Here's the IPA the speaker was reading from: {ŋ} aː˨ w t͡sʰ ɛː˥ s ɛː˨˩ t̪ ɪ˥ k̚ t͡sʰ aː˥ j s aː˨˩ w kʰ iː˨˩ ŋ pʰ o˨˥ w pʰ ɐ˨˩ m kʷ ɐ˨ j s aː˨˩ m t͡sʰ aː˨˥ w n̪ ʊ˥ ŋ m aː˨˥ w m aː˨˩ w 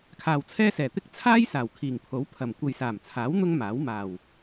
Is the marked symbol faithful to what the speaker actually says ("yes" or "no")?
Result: no